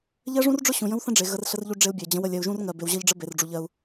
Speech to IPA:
ʎ ɜ˦ ʐ ũ˦ r ɖ͡ʐ ʊ˦ ɕ ũ˨ j ə̃˦ w θ ə̃˦ ɖ͡ʐ e˨ ɣ ə˨ r ɬ ə˦ r ʎ u˦ ɖ͡ʐ e˦ u̯ bʲ ɜ˨ d͡ʑ ə̃˨˦ w ə˨ lʲ ɜ˨ u̯ ʒ ũ˦ r ŋ ɜ˨ b e˨ w ʑ ɜ˦ ʎ ɖ͡ʐ ə˦ b e˨ r ɖ͡ʐ u˨ ʎ ɜ˦ u̯

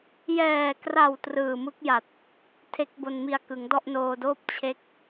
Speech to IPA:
j ɛː˨˩ k r a˨˩ w t r ɯː˨˩ m ɯ˦˥ k̚ j a˨˩ t̚ | tʰ e˦˥ k̚ b o˧ n m i˧ a̯ k ɯ˩˦ ŋ d ɔ˥˩ ʔ n oː˧ d oː˥˩ p̚ t͡ɕʰ e˦˥ k̚

